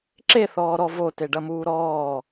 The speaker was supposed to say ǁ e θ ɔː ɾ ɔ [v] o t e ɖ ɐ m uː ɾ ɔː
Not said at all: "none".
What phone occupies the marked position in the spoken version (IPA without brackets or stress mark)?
v